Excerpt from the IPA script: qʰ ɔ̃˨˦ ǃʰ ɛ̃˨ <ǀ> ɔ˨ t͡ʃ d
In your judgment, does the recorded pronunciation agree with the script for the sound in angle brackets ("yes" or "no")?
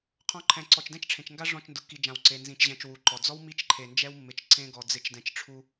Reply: yes